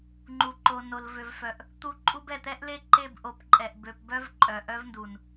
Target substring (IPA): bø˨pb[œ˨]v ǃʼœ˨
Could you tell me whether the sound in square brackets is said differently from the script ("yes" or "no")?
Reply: yes